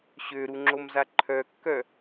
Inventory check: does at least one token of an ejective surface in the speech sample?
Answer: no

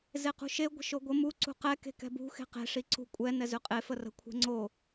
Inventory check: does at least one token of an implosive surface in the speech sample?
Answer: no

